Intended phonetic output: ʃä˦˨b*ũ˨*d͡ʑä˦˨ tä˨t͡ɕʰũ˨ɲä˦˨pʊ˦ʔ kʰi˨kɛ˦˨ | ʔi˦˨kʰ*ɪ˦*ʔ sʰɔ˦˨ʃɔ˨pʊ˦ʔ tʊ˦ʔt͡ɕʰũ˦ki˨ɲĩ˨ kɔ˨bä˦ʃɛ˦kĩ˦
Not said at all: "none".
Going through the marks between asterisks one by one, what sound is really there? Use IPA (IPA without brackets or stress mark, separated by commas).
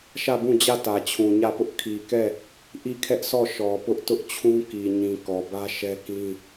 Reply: ũ˦˨, ɛ˦